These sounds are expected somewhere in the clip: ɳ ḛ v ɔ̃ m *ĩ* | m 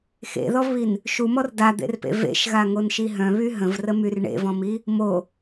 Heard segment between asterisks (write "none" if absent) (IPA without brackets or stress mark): i